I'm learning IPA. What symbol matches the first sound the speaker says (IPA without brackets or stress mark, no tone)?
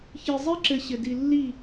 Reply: ç